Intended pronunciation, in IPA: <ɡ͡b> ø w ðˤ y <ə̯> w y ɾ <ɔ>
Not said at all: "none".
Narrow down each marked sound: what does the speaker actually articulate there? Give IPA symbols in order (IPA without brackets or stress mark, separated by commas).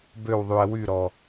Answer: b, ə̯, ɔ